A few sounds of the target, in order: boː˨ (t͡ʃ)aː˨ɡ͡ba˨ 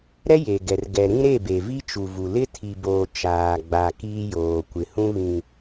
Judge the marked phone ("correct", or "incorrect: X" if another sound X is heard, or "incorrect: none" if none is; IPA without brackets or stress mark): correct